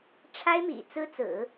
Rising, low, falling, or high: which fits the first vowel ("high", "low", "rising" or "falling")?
high